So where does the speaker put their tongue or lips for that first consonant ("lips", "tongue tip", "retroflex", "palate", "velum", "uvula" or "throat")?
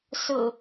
tongue tip